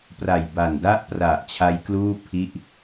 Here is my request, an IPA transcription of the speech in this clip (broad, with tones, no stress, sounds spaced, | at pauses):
p r a˨˩ j b a˨˩ n d a˦˥ ʔ p r a˨˩ ʔ t͡ɕʰ a˦˥ j k l uː˥˩ pʰ i˥˩ ʔ